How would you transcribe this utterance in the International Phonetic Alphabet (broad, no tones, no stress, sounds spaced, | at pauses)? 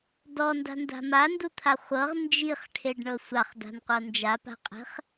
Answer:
d ɔ n d a̤ n d a̤ m a n d u t̪ʰ a χʷ ɤ ʁ n d͡ʒ i χ ʈʰ e ɖ ɳ ɤ sʷ a χ d a̤ n qʷ ɤ n d͡ʒ a p a̤ qʼ e̤ χ